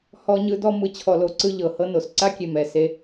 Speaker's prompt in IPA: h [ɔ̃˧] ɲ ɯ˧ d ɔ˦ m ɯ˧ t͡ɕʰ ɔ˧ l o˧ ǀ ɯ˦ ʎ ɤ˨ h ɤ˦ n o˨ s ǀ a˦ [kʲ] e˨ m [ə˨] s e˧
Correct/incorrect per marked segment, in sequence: incorrect: ɔ˧, correct, incorrect: ɛ˨

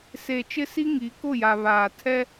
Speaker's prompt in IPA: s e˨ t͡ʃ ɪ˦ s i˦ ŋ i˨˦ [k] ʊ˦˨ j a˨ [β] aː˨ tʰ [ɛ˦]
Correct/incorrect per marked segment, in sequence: correct, correct, correct

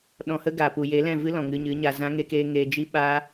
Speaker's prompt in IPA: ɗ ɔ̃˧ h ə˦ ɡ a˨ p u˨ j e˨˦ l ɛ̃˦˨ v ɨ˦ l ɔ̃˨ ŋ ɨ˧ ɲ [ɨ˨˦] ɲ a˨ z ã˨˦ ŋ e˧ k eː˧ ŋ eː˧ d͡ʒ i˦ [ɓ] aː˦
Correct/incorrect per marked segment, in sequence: correct, correct

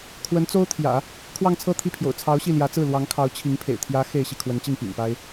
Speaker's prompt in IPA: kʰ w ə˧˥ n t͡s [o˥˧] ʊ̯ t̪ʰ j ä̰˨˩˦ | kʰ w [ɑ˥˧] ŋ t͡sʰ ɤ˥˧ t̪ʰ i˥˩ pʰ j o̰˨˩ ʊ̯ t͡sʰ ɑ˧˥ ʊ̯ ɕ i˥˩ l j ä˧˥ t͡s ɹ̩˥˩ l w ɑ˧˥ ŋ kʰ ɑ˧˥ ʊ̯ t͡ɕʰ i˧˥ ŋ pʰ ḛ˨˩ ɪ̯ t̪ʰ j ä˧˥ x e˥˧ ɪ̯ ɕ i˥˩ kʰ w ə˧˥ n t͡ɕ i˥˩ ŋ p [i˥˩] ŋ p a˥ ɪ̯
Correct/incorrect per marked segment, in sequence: incorrect: o˥, correct, incorrect: ḭ˨˩

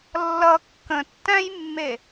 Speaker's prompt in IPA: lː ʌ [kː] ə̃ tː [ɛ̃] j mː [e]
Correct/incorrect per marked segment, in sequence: correct, incorrect: æ̃, correct

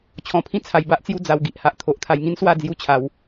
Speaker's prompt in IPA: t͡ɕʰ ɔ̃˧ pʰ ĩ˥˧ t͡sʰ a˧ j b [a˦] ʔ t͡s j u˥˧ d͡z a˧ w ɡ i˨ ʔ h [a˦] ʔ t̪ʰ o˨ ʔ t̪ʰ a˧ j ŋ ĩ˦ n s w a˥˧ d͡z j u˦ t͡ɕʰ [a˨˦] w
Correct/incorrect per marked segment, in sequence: correct, correct, correct

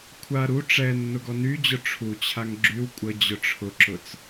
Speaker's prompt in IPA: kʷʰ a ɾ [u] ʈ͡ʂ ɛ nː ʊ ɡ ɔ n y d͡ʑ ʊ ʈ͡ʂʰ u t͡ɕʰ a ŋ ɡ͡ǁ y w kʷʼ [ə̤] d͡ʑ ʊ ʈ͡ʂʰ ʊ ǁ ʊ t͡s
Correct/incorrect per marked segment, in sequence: correct, incorrect: ə

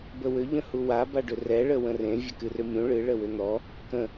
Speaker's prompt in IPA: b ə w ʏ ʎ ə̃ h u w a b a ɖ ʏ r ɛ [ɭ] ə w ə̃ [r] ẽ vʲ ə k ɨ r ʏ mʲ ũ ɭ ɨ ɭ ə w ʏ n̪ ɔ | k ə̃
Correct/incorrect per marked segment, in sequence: correct, correct

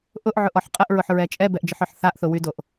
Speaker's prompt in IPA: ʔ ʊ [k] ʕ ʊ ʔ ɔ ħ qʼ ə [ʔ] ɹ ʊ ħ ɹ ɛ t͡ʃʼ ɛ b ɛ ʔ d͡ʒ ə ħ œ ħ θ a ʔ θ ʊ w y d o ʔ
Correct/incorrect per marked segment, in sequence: incorrect: ʔ, correct

